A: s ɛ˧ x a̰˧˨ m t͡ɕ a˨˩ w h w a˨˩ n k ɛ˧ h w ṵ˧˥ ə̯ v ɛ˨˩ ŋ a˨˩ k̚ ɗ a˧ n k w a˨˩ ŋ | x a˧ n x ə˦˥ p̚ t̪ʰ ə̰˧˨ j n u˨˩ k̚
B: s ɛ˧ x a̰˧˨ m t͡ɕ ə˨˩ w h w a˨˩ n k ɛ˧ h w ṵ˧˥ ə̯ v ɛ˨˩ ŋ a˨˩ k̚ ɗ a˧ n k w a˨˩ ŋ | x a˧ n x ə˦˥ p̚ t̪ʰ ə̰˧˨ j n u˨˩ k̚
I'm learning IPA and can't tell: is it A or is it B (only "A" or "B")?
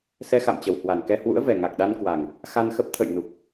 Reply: B